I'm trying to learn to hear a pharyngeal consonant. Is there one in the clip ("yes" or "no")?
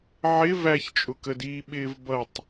yes